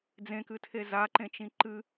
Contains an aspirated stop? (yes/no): yes